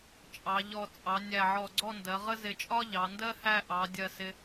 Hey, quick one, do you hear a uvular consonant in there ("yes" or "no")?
yes